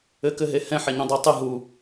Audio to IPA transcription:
ɘkɘɦe hɛ̃ħeɲõ dˤutˤɨ ɦu

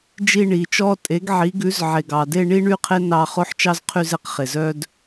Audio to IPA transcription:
d͡ʒi˦˨ɳiː˩t͡ʃɔː˦ tʼe˩˥ɡʕi˩˥ɡʉ˩˥z ʕe˩ɡɑ˩de˦˨ ɳi˦ɳy˦qʰe˦ nɑ˦˨ χo˦ħt͡ʃɑ˦zqʰy˦˨ze˩˥q χe˩zœ˦d

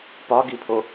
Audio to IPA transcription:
pɒɡipʰo

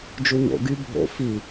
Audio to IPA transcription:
d͡ʒuɲo̰ ɡy bʱo̰ fi

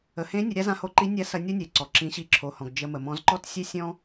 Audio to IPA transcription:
ə˩hẽ˧˥nʲə˩˧ ɾʲa˧˥zã˧ho˧ ǃi˧˥nʲa˧˥sɐ˧ nʲo˥nʲe˩ǀɔ˩ ǁĩ˩˧ɕi˩˧ǁʰo˩hɔ̃˩ɡ d͡ʒə˧ mə˩mɔ̃˧z ǃɔ˥tsʲe˥sʲɔ̃˥

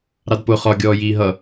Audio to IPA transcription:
ɾɑdpʊ χɒ ɡʲɔːjiːɦʌ

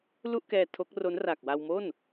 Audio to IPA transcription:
lu˥˩ʔkɛː˧ tʰo˦˥k̚ro˦˥n ra˨˩k̚wa˧wmo˥˩n

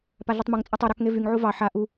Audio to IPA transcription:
paɮutˤmuŋt͡sʼatˤ u ɾɑkŋevyŋʕu vɑ ħa ʔu

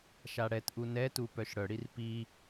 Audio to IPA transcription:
ʃaɽɛtʔu nɛtu pœʃɽœɽir pi

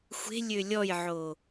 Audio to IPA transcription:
xʷe̤ lʲølʲɔjʕo

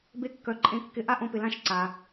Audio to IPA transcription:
be˧kːœ˩ǃʼẽ˩˥kːɪ˩˥ ʔa˥ʔõ˧pɪ˩lã˥˩ʃ ǀa˩

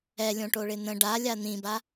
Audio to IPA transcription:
ɛlʲõʈoɭɪ n̪ə̃ ɖalʲa n̪ĩba

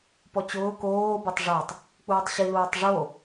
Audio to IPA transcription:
pɔt͡ɕʊː koː betˤʐatˤ | k͡puːtˤɕi luːtˤʐo

